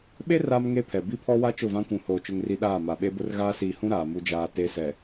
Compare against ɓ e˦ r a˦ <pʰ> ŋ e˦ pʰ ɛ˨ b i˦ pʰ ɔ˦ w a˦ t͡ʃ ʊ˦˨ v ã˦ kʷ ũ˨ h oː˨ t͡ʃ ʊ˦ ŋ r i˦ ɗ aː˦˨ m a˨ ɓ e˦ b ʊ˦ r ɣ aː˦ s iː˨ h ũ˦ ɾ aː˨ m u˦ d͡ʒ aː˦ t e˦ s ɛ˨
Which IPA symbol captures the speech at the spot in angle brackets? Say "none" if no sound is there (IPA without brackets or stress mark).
m